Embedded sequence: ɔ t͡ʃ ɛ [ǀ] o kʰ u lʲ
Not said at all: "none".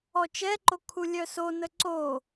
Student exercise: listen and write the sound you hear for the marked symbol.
ǃ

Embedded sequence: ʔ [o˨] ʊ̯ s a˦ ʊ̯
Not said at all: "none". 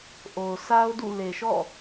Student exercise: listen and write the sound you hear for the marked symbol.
o˨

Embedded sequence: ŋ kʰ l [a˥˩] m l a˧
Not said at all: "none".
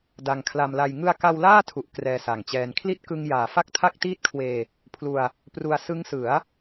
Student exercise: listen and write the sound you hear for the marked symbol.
a˧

